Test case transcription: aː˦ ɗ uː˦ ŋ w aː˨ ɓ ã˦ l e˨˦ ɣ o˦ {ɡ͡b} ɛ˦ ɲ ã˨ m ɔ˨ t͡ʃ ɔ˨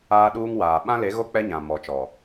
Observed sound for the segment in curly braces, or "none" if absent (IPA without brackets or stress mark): k͡p